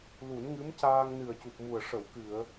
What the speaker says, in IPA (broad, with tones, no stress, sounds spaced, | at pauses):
l u˨˩˦ n ŋ ɨ˧˥ m c aː˧ ŋ n ɨ˨˩ ə̯ c u˨˩ p̚ m u˨˩ ə̯ ʂ ə˨˩˦ w k ɨ˨˩˨ ə̯